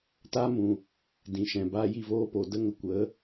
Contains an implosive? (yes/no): no